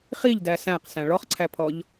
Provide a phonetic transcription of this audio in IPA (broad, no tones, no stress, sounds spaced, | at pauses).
χ i ʎ d æ s æ̃ q s æ̃ ɭ ɔ χ ǀʰ æ pʰ ɔ ʎ